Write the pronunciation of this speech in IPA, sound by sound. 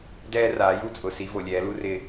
d ɛː˦ r aː˨˦ j u˦ t͡sʼ ʊ˨ s i˨˦ v o˨ lʲ ɛː˨˦ l u˦ r ɪː˦

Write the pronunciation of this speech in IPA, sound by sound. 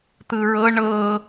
t̪ ɯ ɹ ɤ ɳ ɤ

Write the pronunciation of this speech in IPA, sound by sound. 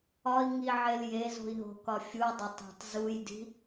ɒ i̯ ŋ i ʕ e l j e z o̤ i̯ ɦ o̤ k ɒ fʲ u dˤ o tˤ e̤ tˤ z u j d i̤

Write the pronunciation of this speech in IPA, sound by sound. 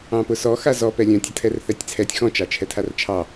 ɑ̃ p ʊ s ɔ x a z ɔ p ɛ lʲ œ̃ tʲ ə tʰ ɛ r θ ɛ tʲ t͡sʰ ɛ tʲ x ɔ̃ t͡ʃ ɑ t͡ʃʰ ɛ tʰ a r t͡ʃʰ ɑ

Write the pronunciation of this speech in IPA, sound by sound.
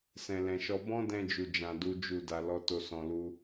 s ɛ̃˨ l ɛ̃˨ ʃ ɔ˧ b ɔ̃˦ d ɛ̃˧ d͡ʒ u˨ d͡ʒ ã˨ d u˨˦ d͡ʒ u˦˨ d a˧ l ɔ˦ t o˦ s ɔ̃˧ l u˦

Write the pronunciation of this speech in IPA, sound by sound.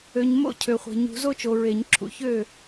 ø˨ ɲ m o̰˥˨ cʰ ø˨ χʷ e̤˨ ɲ ṳ˨˦ z o˦ t͡ʃ o˨ ɹ e˨˩˦ ɲ ǁʰ ṵ˨ ç ø˥˨

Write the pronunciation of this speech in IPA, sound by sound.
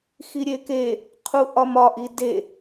x i ɾʲ e k e | qʰ u ʔ ɒ m ɒ ʔ i d e

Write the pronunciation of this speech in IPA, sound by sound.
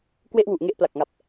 k w e˥˩ ʔ w u˨˩ ʔ ŋ e˥˩ ʔ p l a˨˩ k̚ ŋ a˨˩ p̚

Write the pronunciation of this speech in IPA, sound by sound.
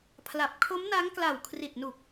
pʰ l a˨˩ p̚ kʰ o˦˥ m n a˦˥ ŋ k l a˨˩ w kʰ r i˨˩ t̚ n u˨˩ k̚

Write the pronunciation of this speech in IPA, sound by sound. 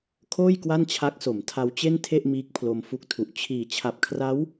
kʰ oː˥˩ j k w a˥˩ n t͡ɕʰ a˦˥ k̚ s o˩˦ m tʰ a˧ w t͡ɕ e˥˩ n tʰ e˥˩ ʔ m iː˦˥ k̚ pʰ l o˧ m f u˦˥ k̚ tʰ u˨˩ ʔ t͡ɕʰ iː˨˩ t͡ɕʰ a˨˩ p̚ kʰ r a˦˥ w

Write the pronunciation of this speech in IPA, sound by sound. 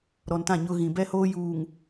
ɾ ɔ˨ n t ã˦˨ ɲ ʊ˦ ɣ ĩ˨ b ɛ˦ h oː˦ j uː˨ ŋ

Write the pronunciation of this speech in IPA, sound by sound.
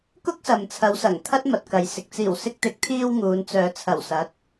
k ʊ˥ k̚ s ɐ˨ m t͡sʰ ɐ˨˧ w s ɐ˨˩ ŋ t̪ʰ ɐ˥ t̚ m ɐ˨ t̚ k ɐ˨ j s ɪ˨ k̚ t͡s iː˨˩ w s ɪ˧ k̚ t̪ ɪ˨˥ k̚ t̪ʰ iː˧ w ŋ uː˨˧ n t͡s œː˨˧ t͡sʰ ɐ˨˩ w s ɐ˨˥ t̚

